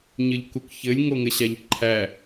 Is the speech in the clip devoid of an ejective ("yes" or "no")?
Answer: yes